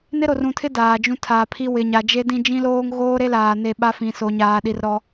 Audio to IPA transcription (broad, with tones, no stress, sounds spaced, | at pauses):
n ɪ˦ ɾ o˨ r ũ˨ tʰ ɪ˦ d aː˨ d͡ʒ ũ˦ tʰ aː˨ pʰ i˦ w ɪ˨ ɲ a˨ d͡ʒ e˦ d ĩ˦ d͡ʒ ĩ˦ l oː˦ ŋ ɣ oː˦ ɾ e˦ l aː˨ n e˦˨ ɓ a˦ f ĩ˨ s o˨ ɲ aː˨ ɗ i˨ r ɾ ɔ˦